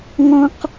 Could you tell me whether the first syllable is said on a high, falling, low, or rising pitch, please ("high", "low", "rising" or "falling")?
high